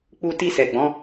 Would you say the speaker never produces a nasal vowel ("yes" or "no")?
no